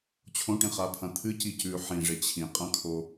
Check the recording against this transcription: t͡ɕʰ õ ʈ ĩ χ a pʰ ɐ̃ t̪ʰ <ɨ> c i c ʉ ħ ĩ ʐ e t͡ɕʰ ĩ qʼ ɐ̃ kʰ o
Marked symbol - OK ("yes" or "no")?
yes